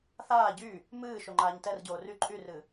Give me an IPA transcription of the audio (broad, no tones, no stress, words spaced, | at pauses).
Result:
θaː ɟy | mɨː ʃoŋ͡ǃaːɲtɛrɟoː ry ǃʼyrɨ